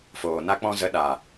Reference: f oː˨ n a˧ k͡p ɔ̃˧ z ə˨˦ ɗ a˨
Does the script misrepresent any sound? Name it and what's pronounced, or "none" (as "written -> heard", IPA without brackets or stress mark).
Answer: none